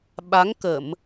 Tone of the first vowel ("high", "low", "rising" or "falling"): rising